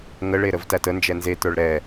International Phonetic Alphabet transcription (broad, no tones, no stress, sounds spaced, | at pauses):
ŋ ə ɭ e ɾ ə v t æ t ə n d͡ʒ ɛ n z e t ə˞ ɭ ɾ ɛ